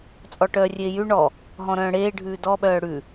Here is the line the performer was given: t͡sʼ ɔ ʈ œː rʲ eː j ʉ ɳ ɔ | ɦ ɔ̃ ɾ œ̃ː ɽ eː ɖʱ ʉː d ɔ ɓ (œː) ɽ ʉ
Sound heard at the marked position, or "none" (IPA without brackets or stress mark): œː